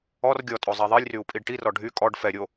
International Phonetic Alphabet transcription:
ɔr ɡʲɔtʼo zˤɛðˤilʲryu̯ pʼiɖʈirɔ ɖʱy kʼɔɖ fɛ ɾʲo

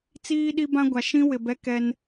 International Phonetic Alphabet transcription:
t͡siː˦ɗi˦bã˦ɡʷa˨ ʃĩ˦wɪ˨ bɛ˦ kɛ˦n

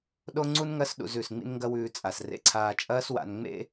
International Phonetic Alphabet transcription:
ɗo˦ŋ͡ǀu˦n ŋɐ˧sɗṵ˨z ʉ˨sŋ͡mḭ˦nŋɡɐ˦wʉː˧ t͡sʼa˨srḛ˧ǀʰaː˧ t͡ʃʼɐː˦swa̰˧n ŋ͡mḛ˦

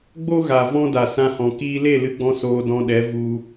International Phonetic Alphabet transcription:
ɡ͡bo˦ɣa˨vɔ̃˦da˨ sã˧hɔ̃˨ kiː˧le˦˨lɨ˧ɡ͡bɔ̃˧ soː˧dɔ̃˧ɗɛ˨˦ vu˧

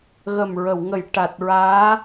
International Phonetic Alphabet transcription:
ɣə˨˩mɹə˨˩˨w ŋə˨˩˨j ʈa˨˩t̚ɹaː˧˥

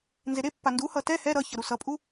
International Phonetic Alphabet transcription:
nzeɾepːa nduhʌ tɛ hɛ ɾʌçʌ ɾusʌpʼu

